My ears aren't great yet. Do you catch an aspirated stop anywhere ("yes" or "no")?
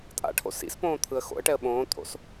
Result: yes